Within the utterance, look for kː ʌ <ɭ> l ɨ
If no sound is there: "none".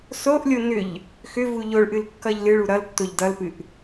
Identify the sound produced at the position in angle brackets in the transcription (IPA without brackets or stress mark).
ʎ